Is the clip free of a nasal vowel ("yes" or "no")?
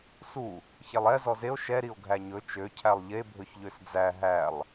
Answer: yes